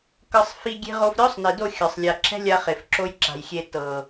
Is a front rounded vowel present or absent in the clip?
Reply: absent